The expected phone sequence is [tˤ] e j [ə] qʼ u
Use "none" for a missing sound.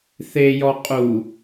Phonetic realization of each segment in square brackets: θ, ɔ

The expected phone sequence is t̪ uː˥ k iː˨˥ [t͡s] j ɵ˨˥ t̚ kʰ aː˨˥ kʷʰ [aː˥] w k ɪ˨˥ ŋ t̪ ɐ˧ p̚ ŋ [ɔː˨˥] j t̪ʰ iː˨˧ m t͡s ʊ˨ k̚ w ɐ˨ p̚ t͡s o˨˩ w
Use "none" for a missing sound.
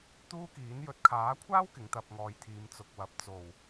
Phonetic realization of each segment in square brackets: n, aː˥, ɔː˨˧

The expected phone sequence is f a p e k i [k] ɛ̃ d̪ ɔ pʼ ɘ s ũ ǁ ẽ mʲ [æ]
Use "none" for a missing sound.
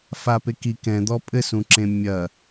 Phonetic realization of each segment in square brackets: k, ɐ

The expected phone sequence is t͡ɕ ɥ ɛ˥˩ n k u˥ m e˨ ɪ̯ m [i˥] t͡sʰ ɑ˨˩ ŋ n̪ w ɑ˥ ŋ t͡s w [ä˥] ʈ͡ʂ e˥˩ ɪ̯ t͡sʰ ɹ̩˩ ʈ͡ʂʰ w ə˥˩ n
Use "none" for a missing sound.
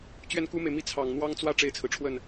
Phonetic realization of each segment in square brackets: i˥˩, ä˥

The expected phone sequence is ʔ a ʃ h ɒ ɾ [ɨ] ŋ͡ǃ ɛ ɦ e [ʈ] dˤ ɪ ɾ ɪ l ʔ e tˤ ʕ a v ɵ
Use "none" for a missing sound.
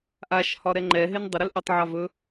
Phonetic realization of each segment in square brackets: ɛ, n

